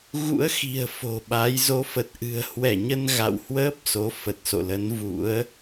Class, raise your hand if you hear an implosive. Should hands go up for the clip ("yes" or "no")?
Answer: yes